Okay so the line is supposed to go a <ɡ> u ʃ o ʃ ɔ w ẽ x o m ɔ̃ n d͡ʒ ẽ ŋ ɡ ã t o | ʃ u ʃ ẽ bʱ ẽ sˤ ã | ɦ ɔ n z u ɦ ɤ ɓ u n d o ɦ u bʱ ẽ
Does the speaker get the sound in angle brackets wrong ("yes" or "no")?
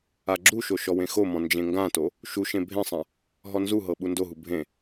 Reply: yes